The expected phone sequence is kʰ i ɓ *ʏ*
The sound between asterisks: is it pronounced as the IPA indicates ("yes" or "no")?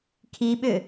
yes